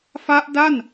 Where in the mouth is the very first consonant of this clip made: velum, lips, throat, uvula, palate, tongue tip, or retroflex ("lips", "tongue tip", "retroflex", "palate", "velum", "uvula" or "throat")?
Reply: lips